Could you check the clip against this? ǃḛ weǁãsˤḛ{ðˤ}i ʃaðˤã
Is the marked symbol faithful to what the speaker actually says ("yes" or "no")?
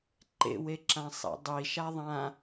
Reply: no